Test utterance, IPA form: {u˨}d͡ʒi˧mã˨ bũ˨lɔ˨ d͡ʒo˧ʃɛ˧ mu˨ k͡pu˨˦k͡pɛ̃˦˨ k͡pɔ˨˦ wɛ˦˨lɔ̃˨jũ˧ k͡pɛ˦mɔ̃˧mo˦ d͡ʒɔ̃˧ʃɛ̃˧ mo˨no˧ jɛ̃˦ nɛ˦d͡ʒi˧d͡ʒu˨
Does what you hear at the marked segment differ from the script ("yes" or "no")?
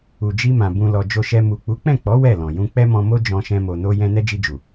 no